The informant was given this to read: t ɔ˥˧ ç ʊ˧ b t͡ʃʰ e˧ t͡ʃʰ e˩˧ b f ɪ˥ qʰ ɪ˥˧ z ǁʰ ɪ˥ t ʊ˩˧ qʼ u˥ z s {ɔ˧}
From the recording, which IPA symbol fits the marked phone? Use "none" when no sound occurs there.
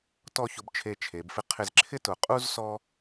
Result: ɔ˥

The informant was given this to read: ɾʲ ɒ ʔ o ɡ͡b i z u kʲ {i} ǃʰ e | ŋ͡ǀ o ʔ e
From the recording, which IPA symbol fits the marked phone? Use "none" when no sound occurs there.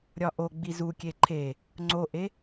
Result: e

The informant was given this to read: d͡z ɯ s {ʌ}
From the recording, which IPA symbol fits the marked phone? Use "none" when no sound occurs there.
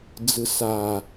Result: a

